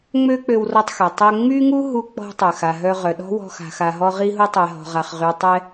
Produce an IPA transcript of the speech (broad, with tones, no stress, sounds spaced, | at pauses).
ŋ͡m ø˥ k͡p ø˧ w r ɔ˧ tˤ x ɛ˩ tˤ ø˧ ŋ͡m y˥ ŋ u˥ ɦ u˧ k͡p ɔ̤˧ tˤ œ˩ x a˩ ɦ œ˧ ʁ œ˩ ɗ ɔ̤˥ w ɔ̤˧ x a̤˩ x a˩ ɦ ɔ˧ ʁ i˧ ɦ u˧ tˤ ɛ˩ ɦ ɔ̤˩ ʁ a˩ χ ʁ y˩ tˤ ɛ˧